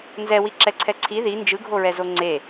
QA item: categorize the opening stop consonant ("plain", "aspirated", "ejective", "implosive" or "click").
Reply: click